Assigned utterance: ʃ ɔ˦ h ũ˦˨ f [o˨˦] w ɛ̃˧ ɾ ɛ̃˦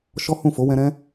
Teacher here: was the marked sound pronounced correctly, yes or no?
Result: yes